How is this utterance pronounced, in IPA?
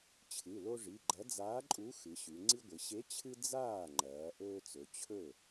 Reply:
t͡ɕʰ ɨ˩˧˩ l o˦ ʐ i˩˧˩ ɡ͡ǃ ɐ˨˥ d͡z aː˨˥ ǃʼ u˨˥ x ɨ˩˧ ɕ ʉ˩˧ ŋ͡ǀ i˦ ɡʷ ɨ˩˧ ɕ e˨˥ t͡ɕʰ ɨ˦ d͡z aː˥˩ ŋ͡ǃ ɐː˩˧ ʔ ɵː˦ t͡s ɵ˩˧ t͡ɕʰ ɵ˥˩

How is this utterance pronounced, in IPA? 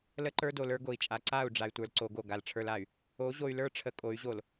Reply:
l ə˦ ǃ ə˞˦ d o˨ l ə˞˦ ɡ o˨ i̯ t͡ʃʼ a˨ ǀ a˦˨ u̯ ɖ͡ʐ a˨ y̯ tʷ ə˞˨ l ǀ o˨ ɡ o˦˨ ɡ a˨ l ʈ͡ʂʰ ə˞˦ l a˨ y̯ | o˨˦ ʑ o˨ y̯ l ə˞˦ ʈ͡ʂʰ ə˨ kʼ o˨˦ y̯ ʑ o˨ l

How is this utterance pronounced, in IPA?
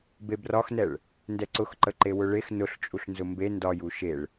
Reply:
b e b r ɒ x n ɛ ɭ | n d ɛ ǀ ʊ x ǃ ə ǃ e w ʊ ɭ e x n ʊ ɬ t͡ʃʼ u ɬ n z ʊ m b e n d ɒ j u ʃ e ɭ

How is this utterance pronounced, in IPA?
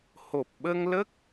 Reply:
h o˨˩ p̚ ɓ ə˧ ŋ l ə˦˥ k̚

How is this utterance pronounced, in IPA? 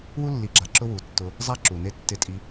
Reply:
w u˦ lː i˨ ɡ͡ǁ a˨ ǁ ʊ˦ w u˨ tː ʊ˧ | zˤ a˦ ǁ u˨ n e˦ tː ɪ˦ tʼ i˧

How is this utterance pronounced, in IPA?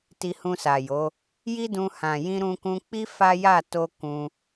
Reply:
t i˧ h ũ˧ s a˨ j o˨˦ | j i˦ d ũ˧ h ã˨ j ĩ˧ ɾ ũ˧ k ũ˧ k͡p i˦ f a˦ j a˦˨ t o˧ k ũ˧

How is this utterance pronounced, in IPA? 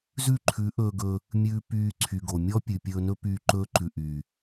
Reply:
z ʉ˦˨ ǃʰ ʉ˨˦ ʔ ɵː˧ ɡ ɵ˧ | mʲ ʉː˧ p yː˧ ǀʰ y˨ ɡ o˨ mʲ ɔ˦ pʲ ʉ˨ pʲ ɵː˧ n ɵ˦ p yː˧ ǃ ɵː˦ ǃ ʉ˨ ʔ y˨

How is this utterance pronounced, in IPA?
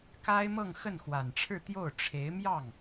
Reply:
k a˥ ɪ̯ m ɤ˥˧ ŋ x ə˥˩ n x w a˨˩ n ʈ͡ʂʰ ɻ̩˥˧ t̪ j o˥˩ ʊ̯ ʈ͡ʂʰ e˧˥ ɪ̯ m j ɑ˥˩ ŋ

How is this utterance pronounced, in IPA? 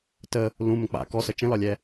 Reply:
t ə | l ũ m ə̃ k͡p a̰ k ɔ s ə t͡ʃ ə̃ l ɒ lʲ ɛ

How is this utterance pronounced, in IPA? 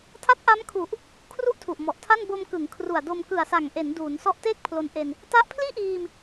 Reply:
tʰ a˦˥ t̚ ʔ a˦˥ m kʰ u˨˩ ʔ | kʰ r u˥˩ ʔ tʰ u˨˩ ʔ m ɔ˨˩ ʔ tʰ a˥˩ n b o˧ m k ɯ˩˦ ŋ kʰ r u˨˩ a̯ d o˧ m k ɯ˨˩ a̯ s a˨˩ ŋ ʔ e˩˦ n d uː˩˦ n s ɔ˦˥ ʔ t eː˥˩ k̚ pʰ l o˧ n ʔ e˧ n | t a˦˥ ʔ pʰ l iː˥˩ ʔ iː˧ m

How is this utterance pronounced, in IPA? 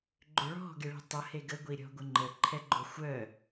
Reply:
ɡ͡ǃ ʏ ɭ ɔ̤ ɡ e ɭ i̤ tˤ ə h e ɡ ə ɡʷ i ɾʲ ɔ̤ ɡʷ ə ŋ͡ǃ ə ǃʰ ɛ ɡ͡ǃ ʊ xʷ œ

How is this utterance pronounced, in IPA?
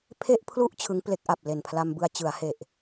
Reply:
pʰ e˥˩ ʔ pʰ l u˥˩ ʔ t͡ɕʰ ɯ˦˥ ŋ p l e˦˥ k̚ ʔ a˨˩ p̚ l e˨˩ n pʰ l a˧ m b ɯ˧ a̯ t͡ɕ ɯ˩˦ a̯ h e˨˩ ʔ

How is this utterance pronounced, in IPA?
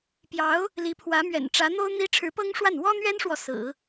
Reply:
p j ɑ˧˥ ʊ̯ | l i˧˥ pʰ w ä˧˥ m ɥ ɛ̰˨˩ n ʈ͡ʂ ä˧˥ n̪ o˥ ʊ̯ n̪ i˥ ʈ͡ʂʰ ɻ̩˧˥ p ɤ˥ ŋ ʂ w a˥˩ n w ɔ˥ n̪ ɥ ɛ˥ n ʂ w ɔ˨ s ɹ̩˨˩˦

